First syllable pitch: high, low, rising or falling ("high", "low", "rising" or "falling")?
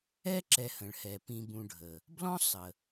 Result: high